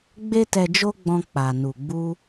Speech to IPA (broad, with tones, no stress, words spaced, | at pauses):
ɡ͡be˦tɛ˧d͡ʒo˦ɡ͡bɔ̃˧ k͡pa˨nu˨ɡ͡bu˧